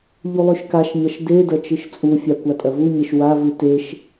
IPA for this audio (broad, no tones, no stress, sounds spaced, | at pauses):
ʎ u lˠ ʉ ʃ k a ʃ ɲ ɐ ʃ d e d ɐ t͡ʃ ɨ ʃ t͡sʼ u fʲ a kʷ a tʼ ɐ v u ɲ e ʃ w a v ɨ t e ʃ